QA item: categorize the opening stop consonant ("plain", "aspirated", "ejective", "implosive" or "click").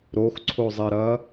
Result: click